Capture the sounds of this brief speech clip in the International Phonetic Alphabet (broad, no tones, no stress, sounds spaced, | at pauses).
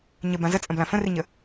ɲ ə b ã z ə t͡sʼ ə̃ b l ã f ə̃ r i ɲ ə